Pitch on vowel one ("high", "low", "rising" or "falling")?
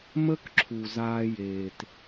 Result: high